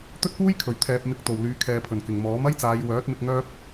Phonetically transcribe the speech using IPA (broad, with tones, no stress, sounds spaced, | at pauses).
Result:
t̪ ɵ˥ t̚ p uː˥ j kʰ ɵ˨˩ ɥ t̪ʰ ɛː˨ p̚ m ɪ˧ k̚ t̪ o˨˩ w l yː˨˧ kʰ ɛː˨ pʰ ɵ˨˩ n k ɪ˨˩ ŋ m ɔː˨˥ m ɐ˥ j t͡s aː˨˧ j w œː˨˥ t̚ m ɪ˧ k̚ ŋ œː˥ p̚